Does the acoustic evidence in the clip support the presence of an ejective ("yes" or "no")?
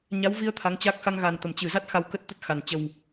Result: no